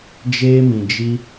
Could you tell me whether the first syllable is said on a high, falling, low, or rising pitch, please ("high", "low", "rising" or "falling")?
high